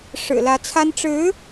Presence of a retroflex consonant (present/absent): present